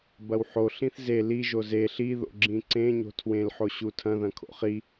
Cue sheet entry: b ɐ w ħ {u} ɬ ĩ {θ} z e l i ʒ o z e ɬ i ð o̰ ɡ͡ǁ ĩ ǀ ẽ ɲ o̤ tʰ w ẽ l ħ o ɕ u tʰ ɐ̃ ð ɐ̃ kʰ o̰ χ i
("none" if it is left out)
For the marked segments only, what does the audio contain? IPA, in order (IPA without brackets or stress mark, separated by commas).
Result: o, θ